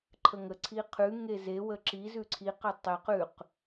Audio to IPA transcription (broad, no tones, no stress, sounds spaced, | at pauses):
ǃʰ ə ŋ ə ǀʰ i qʰ ʉ ŋ e z e w ə ǁ i z ʉ ǀʰ i q ə tˤ e q ʉ q